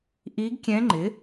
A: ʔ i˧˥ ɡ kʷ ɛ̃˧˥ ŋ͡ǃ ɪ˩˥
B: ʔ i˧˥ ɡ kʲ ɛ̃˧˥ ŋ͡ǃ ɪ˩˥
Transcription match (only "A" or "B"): B